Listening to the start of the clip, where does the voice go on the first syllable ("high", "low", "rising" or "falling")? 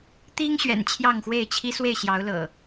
high